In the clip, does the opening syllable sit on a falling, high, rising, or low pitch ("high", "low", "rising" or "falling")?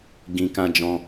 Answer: low